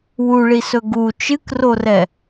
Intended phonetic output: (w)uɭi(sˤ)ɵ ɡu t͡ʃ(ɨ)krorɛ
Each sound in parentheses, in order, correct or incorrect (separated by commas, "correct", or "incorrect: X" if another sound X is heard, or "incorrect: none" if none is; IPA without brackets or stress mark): correct, incorrect: s, correct